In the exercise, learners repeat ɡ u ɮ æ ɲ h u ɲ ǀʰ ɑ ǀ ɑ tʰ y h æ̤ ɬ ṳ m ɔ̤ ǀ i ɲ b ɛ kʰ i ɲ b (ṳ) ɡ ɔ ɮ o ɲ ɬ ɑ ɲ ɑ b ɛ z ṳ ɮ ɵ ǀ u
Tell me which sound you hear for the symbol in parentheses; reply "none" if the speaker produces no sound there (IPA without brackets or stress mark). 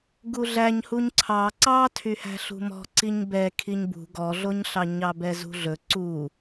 ṳ